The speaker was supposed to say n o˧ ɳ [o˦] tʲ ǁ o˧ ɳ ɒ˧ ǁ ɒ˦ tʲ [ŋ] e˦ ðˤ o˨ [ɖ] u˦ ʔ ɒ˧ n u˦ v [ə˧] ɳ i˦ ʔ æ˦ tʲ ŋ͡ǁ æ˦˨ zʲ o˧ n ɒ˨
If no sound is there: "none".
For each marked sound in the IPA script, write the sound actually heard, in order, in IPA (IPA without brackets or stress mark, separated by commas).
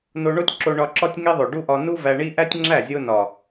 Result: o˦, ŋ, ɖ, æ˧